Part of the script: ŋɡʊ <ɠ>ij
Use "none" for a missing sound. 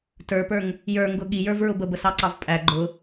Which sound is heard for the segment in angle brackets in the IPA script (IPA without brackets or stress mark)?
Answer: ɠ